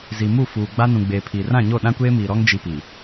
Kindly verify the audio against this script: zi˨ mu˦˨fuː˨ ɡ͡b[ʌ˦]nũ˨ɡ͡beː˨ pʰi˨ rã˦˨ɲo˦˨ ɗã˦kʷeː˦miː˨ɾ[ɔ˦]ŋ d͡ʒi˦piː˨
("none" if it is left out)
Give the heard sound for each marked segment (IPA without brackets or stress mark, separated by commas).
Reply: a˦, ɔ˦